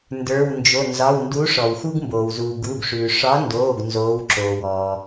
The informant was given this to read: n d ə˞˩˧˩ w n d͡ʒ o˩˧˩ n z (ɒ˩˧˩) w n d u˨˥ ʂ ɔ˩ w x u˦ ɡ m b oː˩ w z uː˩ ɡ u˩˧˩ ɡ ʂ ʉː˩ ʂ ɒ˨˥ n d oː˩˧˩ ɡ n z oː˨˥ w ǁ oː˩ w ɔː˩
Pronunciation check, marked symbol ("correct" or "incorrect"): correct